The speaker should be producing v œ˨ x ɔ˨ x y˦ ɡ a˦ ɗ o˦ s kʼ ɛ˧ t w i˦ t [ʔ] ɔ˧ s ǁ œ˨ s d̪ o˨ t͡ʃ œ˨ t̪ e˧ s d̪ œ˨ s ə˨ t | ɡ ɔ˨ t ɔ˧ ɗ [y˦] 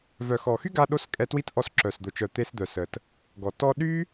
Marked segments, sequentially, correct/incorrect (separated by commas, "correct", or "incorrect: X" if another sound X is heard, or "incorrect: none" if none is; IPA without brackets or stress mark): correct, correct